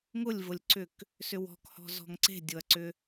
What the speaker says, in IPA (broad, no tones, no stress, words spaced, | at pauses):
ŋʊlʲvʊlʲǀʏk | sʏwɔ̤khɔ̤ zɔ̤ŋǀe̤dʲʊɐ̯ǀʏ